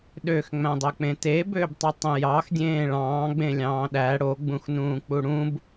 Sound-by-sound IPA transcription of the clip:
ɗøxŋ͡mæ̃dˤøk͡pẽ tebøbtˤitˤẽ jɑxdʲẽː ɭɑ̃ːɡ͡bẽlʲɑ̃ː ɗæ ɽoɡ͡bũxnũːk͡pu ɽũb

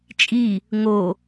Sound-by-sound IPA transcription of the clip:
t͡ʃʼi | ŋo

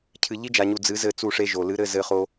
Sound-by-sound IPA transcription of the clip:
cʰɨ˨ ʎi˦d͡ʒa˨ɲu˨ d͡zɨ˨˦zɘ˦˨ t͡su˦˨ʂe˦ʒo˨ lɨ˨˦ɾɘ˧zɘ˧χo˧

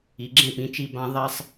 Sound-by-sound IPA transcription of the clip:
i˨ɡ͡ǁẽ˥˨pĩ˨˦t͡ʃi˥˨ bã˥ ðˤɛ˥sˤ

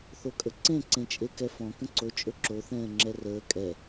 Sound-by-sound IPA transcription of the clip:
θokʼəǀẽ ǀẽt͡ʃʼekɛfɔ̃ kə̃ǀo t͡ʃʼɵǁo θɛ̃ːŋ͡ǁɛrəː kʼɛ

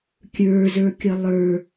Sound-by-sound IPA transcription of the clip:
kʲə˞zə˞kʲʌ lˠə˞

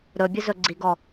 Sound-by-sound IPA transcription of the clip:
ɾɵbʲɵzɵ ɡ͡ǀiɡɔ

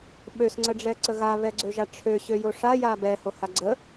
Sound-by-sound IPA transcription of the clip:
ɓøsŋ͡ǀəɖ͡ʐɛǀə ɣaβɛɡ͡ǀøʒa ʈ͡ʂʰøɕøjo ʂaja bɛhoha ɡ͡ǀə

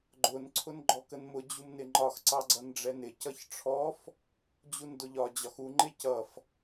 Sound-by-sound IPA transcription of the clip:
ɡ͡ǃʊn ǀʰʊnɡ͡ǃɔkənmʊ d͡ʑumnɪŋ͡ǃɒx ǀɑɡ͡ǀʌnɖ͡ʐɛnɪ cʌçʈ͡ʂʰɔf | d͡ʑundʊʎɒ d͡ʑɒxu ŋ͡ǃɪcʌf

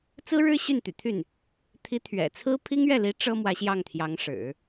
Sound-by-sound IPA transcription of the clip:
t͡sɹ̩˥ɻɻ̩˥ ɕy˥˩nt̪y̰˨˩t̪ʰy˥˩n | t̪ʰi˧˥t̪ʰɥɛ̰˨˩t͡sʰɹ̩˥ pʰi˥ŋɥɛ˥˩li˧˥ ʈ͡ʂɤ˥ mwä˧˥ɕjɑ˥˩ŋt̪ʰjɑ˧˥ŋ ʂɻ̩˨˩˦

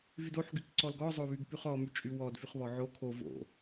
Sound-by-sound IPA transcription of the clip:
vydoħ ɡykǀɔlɡɔ zˤoβyɡpyχɔ myt͡ʃʼywɔd fyχβɔʕo kʰo vo̰

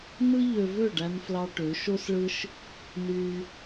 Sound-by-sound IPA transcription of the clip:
nɯ˦ ʎø˧vø˦˨ɖæ˧n flɑ˧ʈø˨˦ ʃo˦sɭɯ˦ʃ | nyː˧

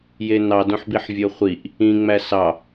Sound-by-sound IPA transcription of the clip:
jenɑdõħbiħ vʲoχʷiʔ | ĩŋ͡mæ sɑ

